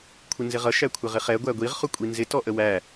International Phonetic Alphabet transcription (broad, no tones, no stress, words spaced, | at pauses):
kʷʰɪnzɪʁʌ ʃækʷʰɪʁɪχɛ ɡʷæɡʷiʁ χʊkʷʼinzɪ tɔʔəwæ